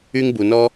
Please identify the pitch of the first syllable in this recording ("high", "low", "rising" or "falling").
high